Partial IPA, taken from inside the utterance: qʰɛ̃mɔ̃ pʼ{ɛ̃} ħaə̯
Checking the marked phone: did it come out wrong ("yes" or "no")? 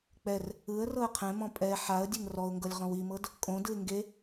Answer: yes